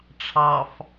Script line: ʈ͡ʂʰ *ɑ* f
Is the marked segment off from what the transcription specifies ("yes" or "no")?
no